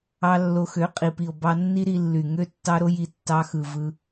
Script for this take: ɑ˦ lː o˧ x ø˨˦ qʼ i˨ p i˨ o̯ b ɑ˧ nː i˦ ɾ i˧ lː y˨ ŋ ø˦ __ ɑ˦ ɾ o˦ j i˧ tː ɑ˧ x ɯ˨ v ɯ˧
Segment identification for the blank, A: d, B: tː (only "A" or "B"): B